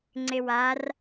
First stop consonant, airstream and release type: click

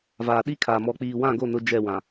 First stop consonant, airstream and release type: implosive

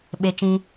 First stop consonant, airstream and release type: implosive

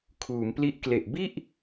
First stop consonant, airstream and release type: aspirated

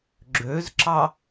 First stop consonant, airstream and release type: click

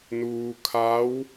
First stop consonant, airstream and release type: aspirated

